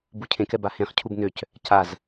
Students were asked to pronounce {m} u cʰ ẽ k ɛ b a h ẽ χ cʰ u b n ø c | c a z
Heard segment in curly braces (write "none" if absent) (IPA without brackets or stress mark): b